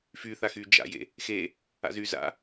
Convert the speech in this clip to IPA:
f y θ a x y d͡ʒ a̰ j ḛ | x e | a̰ z y z a̰

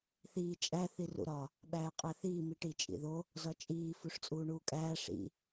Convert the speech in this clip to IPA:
θ iː t͡ʃʼ æ θ i r ṵ ɾ ɒ | ɓ æː qʼ æ θ iː m i ʈ i t͡ʃʼ ḭ ð o | z ɒ t͡ʃʼ iː f u ʂ t͡sʼ uː ɳ uː kʼ æː ʂ ḭ

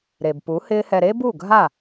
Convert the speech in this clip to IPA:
ɾ e˨ b p u˨˦ h ɪː˦ h ɛ˧ ɾ e˦ b u˦˨ ɡʱ a˦˨

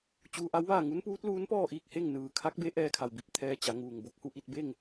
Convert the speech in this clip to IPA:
t͡ɕ uː˧ ʔ a˧˥ w ʋ aː˥˨ ŋ u˧˥ n p uː˧˥ t̚ l uː˧˥ n p ɔː˥˨ ʔ iː˥˨ k̚ h e˥˨ ŋ n ɯː˩ kʰ a˧˥ k̚ b e˧˥ ʔ ɛː˧ kʰ a˩ w b i˧˩ p̚ t̪ʰ ɛː˧ t͡ɕ a˩˧ ŋ uː˩ ŋ b o˧˥ k̚ h u˧˩ ʔ i˥˨ t̚ b e˥˨ ŋ

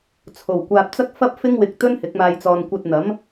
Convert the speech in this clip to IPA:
t͡sʰ o˨˩ w kʷ aː˨ p̚ t͡s ɐ˥ k̚ f ɐ˥ p̚ f ɪ˥ ŋ w ɪ˧ k̚ t̪ ɵ˥ n h ɪ˨˥ k̚ m aː˧ j t͡s ɔː˧ n kʷ ɐ˧ t̚ n̪ ɐ˨˥ m

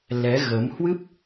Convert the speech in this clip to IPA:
l ɛ˨˦ ɣ ə˨˦ m h w ɨ˦˥ p̚

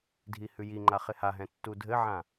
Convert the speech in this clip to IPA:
dʱ i h ʉ j i ŋ͡ǃ a χ ɪ h a ɦ ɛ̃ tː u dʱ ɘ ʕ ã

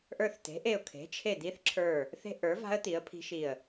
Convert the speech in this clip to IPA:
ʔ ə˞˦˨ θ t e̤˨˥ ʔ e˦˨ ʊ̯ kʰ e̤˨˥ t͡ʃʰ e˦˨ d̪ i˦˥ θ ǁʰ ə˞˦˨ | θ e̤˦˥ ʔ ə˞˨˥ v a̤˦˥ ə̯ t̪ i˨˥ ə̯ pʰ i̤˦˥ ʃ i˦˨ ə̯

